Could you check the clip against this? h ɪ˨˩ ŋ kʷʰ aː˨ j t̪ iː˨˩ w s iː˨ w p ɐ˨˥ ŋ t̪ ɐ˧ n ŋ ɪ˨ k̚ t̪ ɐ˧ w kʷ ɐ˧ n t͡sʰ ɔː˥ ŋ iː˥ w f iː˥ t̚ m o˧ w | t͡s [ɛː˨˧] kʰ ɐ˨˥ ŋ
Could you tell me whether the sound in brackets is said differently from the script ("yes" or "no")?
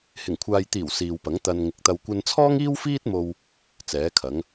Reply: yes